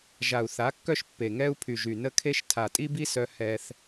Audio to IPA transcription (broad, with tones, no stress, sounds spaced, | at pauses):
ʒ a˨ u̯ θ a˨˦ kː œ˦ ʃ pː e˨ ŋ ɛ˦ u̯ pʰ y˨ ʒ y˨ n ə˦ kʰ e˦ ʃ tʰ a˨ tʼ i˦ b i˦ s œ˧ h ɛ˦ θ